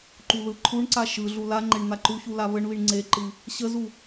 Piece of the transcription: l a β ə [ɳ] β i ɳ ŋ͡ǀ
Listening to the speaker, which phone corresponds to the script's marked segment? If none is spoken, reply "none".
ɳ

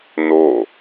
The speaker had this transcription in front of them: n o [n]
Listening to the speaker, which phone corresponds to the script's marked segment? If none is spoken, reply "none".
none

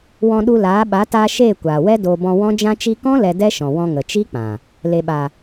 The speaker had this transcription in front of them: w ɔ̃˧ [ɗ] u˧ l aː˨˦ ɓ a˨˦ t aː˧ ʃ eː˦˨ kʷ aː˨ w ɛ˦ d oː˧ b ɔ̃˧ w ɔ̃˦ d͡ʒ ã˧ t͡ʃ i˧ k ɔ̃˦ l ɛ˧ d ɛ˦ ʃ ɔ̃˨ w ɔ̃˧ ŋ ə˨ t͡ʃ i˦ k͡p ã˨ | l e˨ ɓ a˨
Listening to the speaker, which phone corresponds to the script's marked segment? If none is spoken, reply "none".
ɗ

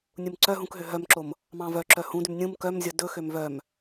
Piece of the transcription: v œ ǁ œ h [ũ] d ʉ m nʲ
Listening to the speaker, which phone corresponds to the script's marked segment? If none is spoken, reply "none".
ũ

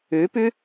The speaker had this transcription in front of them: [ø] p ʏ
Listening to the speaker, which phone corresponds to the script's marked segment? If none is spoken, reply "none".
ø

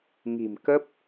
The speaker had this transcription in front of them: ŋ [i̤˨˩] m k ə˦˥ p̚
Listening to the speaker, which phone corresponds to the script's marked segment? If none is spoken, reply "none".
i̤˨˩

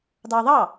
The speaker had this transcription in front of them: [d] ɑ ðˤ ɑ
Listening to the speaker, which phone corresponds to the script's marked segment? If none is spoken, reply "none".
d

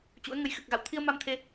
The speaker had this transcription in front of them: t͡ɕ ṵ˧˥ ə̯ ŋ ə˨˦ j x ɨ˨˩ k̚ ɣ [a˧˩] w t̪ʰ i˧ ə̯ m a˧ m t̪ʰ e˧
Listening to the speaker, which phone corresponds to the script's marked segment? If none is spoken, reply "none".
a̰˧˨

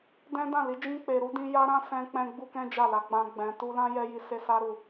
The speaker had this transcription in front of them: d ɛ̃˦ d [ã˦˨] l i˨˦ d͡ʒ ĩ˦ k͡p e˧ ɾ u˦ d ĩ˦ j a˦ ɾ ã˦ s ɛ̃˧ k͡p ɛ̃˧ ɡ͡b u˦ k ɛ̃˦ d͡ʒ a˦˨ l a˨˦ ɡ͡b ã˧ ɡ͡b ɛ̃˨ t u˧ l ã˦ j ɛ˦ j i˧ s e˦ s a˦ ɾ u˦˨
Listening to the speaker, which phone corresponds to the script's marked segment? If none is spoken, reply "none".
ã˦˨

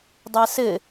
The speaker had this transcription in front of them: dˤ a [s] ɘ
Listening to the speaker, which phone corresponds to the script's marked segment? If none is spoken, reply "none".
s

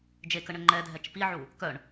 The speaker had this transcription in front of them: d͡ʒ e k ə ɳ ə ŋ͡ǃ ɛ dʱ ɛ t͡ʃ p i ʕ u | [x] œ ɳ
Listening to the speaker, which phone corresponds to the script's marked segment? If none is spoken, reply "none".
k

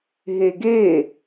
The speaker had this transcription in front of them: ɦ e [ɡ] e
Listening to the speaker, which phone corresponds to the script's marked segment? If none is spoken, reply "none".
ɡ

